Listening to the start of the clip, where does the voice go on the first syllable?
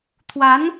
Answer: rising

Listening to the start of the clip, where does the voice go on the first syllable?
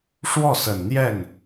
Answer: falling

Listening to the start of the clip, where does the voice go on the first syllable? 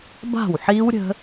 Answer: falling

